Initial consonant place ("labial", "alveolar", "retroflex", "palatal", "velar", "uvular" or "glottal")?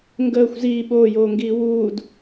velar